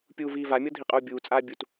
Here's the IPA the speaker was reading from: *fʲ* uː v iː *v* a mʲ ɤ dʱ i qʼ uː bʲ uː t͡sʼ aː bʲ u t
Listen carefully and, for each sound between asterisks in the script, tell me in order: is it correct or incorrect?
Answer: incorrect, correct

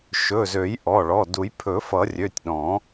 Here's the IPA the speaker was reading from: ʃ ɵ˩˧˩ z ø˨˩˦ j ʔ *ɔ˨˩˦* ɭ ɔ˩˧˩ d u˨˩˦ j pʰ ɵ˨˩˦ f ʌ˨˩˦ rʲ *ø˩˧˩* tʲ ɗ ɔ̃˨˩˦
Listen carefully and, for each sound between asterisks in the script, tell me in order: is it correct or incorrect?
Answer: incorrect, correct

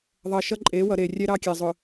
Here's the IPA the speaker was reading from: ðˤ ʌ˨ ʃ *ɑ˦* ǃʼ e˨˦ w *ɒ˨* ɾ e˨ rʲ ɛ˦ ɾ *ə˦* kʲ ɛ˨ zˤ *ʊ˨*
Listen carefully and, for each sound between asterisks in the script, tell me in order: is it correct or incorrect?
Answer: incorrect, incorrect, incorrect, correct

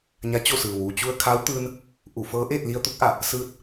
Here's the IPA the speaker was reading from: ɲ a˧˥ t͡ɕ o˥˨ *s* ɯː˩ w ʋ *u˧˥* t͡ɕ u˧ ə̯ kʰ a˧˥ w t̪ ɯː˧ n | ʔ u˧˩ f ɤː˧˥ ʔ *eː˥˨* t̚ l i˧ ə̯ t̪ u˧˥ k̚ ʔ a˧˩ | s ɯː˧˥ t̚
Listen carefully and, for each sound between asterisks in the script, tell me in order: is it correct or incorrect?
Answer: correct, incorrect, correct

